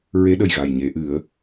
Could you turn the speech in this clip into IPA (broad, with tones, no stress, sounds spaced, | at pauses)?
ɹ e˧˥ ɗ ə˨˩ j ɣ a˨˩ j ɲ e˨˩˦ ʔ ɨ˨˩˦ ə̯